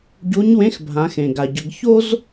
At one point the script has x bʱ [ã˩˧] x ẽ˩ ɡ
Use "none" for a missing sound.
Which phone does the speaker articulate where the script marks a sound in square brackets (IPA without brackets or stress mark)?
ã˩˧